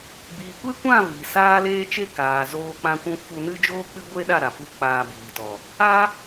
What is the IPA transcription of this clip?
b iː˨ kʷ e˦ kʷ ã˦˨ v i˨ s aː˦ l eː˦ t͡ʃ e˦ k aː˨ z oː˧ k͡p ã˦ kʷ ũ˦ f u˧ n ɨ˦ d͡ʒ oː˦ k͡p ɨ˦ ɡʷ e˦ ɗ a˦˨ ɾ a˨ p u˧ k͡p aː˧ b iː˨ t ɔ˨ | a˦

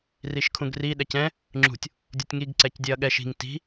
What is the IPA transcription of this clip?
r i ʃ kʰ ũ ɡ r i ɗ ɛ c ɛ̃ | ŋ͡ǁ ṳ tʲ | dʲ u tʲ ŋ i ɡ ǀ ɛ c dʲ ɛ ɐ̯ ɠ ɛ ʃ i̤ ŋ t i̤

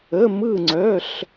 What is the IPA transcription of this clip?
ə˧˥˧ m ɯ˥˧ ŋ͡ǀ œ˧˥˧ ɬ

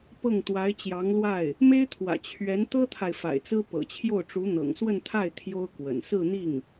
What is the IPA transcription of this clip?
p ɤ˥˩ ŋ t̪ w a˧˥ ɪ̯ t͡ɕ j ɑ˧˥ ŋ l w a˥˩ ɪ̯ | m e˥ ɪ̯ t̪ʰ w ä̰˨˩ t͡ɕʰ ɥ ɛ˧˥ n t̪ ɤ˥ t̪ʰ a˨ ɪ̯ f a̰˨˩ ɪ̯ t͡s ɹ̩˥ p ɤ̰˨˩ t͡ɕʰ j o˥˩ ʊ̯ ʈ͡ʂ u˧˥ n̪ ɤ̰˨˩ ŋ s w ə˥˧ n t̪ʰ a˥˩ ɪ̯ t̪ʰ j o˥ ʊ̯ k w ə̰˨˩ n s ɹ̩˥˧ n̪ i˥˩ ŋ

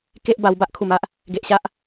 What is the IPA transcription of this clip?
k e˦ ʔ b a˧ w b a˦ ʔ kʰ u˨˩ m a˦ ʔ | ɡ e˨ ʔ ɕ a˦ ʔ

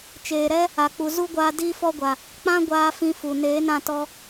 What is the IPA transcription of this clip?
t͡ʃ eː˨ ɾ ɛ˦ | a˨ k͡p u˨ z u˦ ɡʷ aː˧ d iː˦ f ɔ˦ ɡʷ a˨ | k͡p ã˦ ɡʷ aː˧ f ĩ˧ f u˨ n eː˨˦ n ã˦˨ t ɔ˧

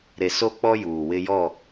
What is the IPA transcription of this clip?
ɾ e˨ s o˦ k͡p ɔ˦ j uː˨ w ɪ˦ j ɔ˦˨

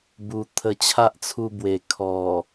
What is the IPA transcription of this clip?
b u˨˩ t̪ʰ ə˧ t͡ɕʰ a˦ ʔ t͡sʰ u˧ b w e˨˩ kʰ ɔ˨˩

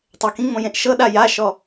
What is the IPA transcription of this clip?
tˤ ɛ k ĩ ŋ͡m õ j ẽ ʔ ʃ ɤ ɗ a j a ʃ ɔ

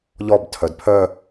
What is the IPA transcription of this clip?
ʎ ɔ b tʰ œ d pʰ œ

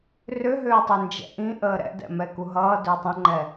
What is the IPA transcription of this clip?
r ʏ ɦ ʏː tˤ ə n d͡ʒ ɛ̰ ʔ ĩ ʔ əː ɾ ɛ̰ d ɛ̰ m ɛ k u ɦ ʌː d ʏː tˤ ə̃ ŋ͡ǃ ɛ

